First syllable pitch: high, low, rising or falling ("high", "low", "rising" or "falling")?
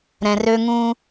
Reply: low